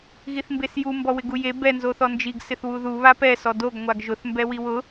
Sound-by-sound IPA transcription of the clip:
ɣiθmbesju mbɔwɪɡuje bɛ nzoθɔnd͡ʒiɡ sɪθwuðu βapɛ sɔdoɡ ŋʷaɡʒʊθ mbɛwiwʊ

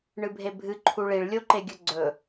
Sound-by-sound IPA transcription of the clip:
ɳɨbʱebʱɨ ǃʰuɭiɭ lʲoǃeɡʲɵɡ͡ǀɵ

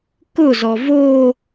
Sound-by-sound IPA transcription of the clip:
kʊzɔ vo

